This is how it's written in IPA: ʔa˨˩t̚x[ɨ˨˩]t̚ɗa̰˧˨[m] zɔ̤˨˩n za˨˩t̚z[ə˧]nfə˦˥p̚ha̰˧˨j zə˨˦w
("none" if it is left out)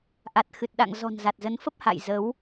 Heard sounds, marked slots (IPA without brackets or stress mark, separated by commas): ɨ˨˩, ŋ, ə˨˦